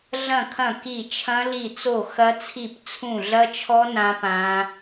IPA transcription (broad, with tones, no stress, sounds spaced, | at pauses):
ɮ ɐ̃˦˨ kʰ ɐ̃˦˨ k i˦˨ t͡ʃʰ ɐ̃˦˥ l i˦˨ t͡s o˦˨ x ɐ˦˥ t͡sʰ i˦˨ p t͡sʰ ũ˦˨ ɮ ɐ˦˥ t͡ʃʰ ɔ˦˥ n ã˦˥ p ã˦˥